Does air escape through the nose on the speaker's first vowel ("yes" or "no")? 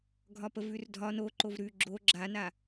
no